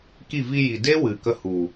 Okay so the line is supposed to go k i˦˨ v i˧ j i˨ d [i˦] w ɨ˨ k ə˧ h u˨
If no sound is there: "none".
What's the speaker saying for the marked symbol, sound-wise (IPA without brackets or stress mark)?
e˦